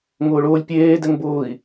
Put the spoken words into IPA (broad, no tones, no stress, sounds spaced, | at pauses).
ŋ ʊː ɭ ʊː lʲ pʲ eː d ɛ ŋ b ʊː i̯